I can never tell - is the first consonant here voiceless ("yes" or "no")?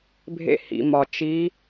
no